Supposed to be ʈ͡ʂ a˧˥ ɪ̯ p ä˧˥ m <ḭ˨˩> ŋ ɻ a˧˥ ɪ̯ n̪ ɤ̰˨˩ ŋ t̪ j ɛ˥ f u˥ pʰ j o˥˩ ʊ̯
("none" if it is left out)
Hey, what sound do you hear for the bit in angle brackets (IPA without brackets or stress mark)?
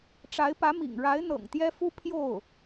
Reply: ḭ˨˩